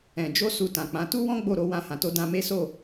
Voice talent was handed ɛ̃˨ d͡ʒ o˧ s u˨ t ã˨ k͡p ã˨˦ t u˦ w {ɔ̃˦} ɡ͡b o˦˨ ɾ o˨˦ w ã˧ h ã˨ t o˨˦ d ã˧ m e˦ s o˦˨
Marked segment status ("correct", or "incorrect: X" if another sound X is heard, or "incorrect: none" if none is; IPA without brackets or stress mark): correct